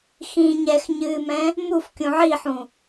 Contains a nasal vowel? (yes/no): yes